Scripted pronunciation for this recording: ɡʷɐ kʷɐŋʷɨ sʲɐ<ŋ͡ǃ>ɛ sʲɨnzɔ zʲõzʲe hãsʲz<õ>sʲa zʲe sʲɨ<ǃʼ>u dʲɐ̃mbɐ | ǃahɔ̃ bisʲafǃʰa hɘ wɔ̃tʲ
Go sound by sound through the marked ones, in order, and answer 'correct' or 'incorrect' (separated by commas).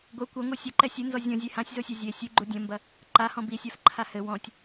incorrect, incorrect, incorrect